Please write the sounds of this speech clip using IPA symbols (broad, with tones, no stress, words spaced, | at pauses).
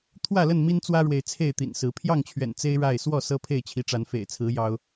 t̪ʰwä˥˨lə˥˨n mi˦nt͡swä˦ɻwe˨ɪ̯ t͡sʰe˥˨ɪ̯t̪ḭ˨˩nsɹ̩˨˦ pʰjɑ˥˨ŋt͡ɕʰɥɛ̰˨˩n t͡se˦ɪ̯ ɻa˥˨ɪ̯ swɔ˥˨ sɤ˦pʰe˥˨ɪ̯t͡ɕʰi˨˦ʈ͡ʂa˨˦n fḛ˨˩ɪ̯t͡sʰɹ̩˨˦ jɑ˦ʊ̯